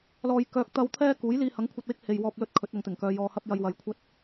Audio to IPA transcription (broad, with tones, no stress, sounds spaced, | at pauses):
l ɔː˨ j k œː˨˥ k̚ t̪ ɐ˧ w t̪ʰ ɛː˥ k uː˨˥ j l iː˧ h ɐ˨˥ ŋ kʷʰ ɐ˧ t̚ w ɪ˥ k̚ h e˨ j w ɔː˨ p̚ l ɵ˧ t̚ kʰ ɵ˨˥ t̚ ɐ˨ ŋ t̪ ɪ˨˩ ŋ k œː˨˧ j ɔː˨ h ɐ˧ p̚ j ɐ˧ j w ɐ˨˧ j kʷʰ ɐ˥ t̚